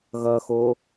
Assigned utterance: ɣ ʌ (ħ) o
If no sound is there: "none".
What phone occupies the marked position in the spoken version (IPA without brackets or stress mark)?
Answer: x